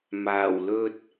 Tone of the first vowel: low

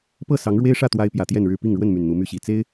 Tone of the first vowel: falling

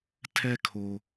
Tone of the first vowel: high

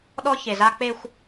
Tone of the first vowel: high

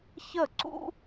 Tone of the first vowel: falling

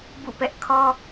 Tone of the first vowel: falling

